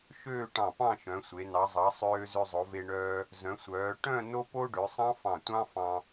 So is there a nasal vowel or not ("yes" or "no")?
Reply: yes